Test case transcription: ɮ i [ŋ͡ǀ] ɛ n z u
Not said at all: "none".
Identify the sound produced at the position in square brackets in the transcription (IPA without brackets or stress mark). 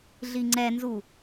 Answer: ŋ͡ǀ